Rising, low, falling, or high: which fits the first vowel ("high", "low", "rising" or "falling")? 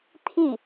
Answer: falling